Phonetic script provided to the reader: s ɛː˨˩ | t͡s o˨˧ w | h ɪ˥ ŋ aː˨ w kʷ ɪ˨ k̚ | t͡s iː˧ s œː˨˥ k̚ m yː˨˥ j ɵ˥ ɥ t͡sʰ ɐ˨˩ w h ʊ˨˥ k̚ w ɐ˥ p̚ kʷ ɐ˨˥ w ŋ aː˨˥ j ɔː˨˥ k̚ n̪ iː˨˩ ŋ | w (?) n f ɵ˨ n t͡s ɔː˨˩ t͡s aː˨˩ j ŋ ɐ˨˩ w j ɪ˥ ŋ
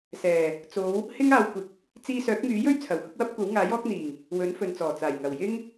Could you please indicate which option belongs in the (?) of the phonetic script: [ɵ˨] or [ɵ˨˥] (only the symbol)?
ɵ˨˥